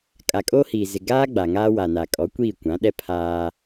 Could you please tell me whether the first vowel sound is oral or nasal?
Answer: oral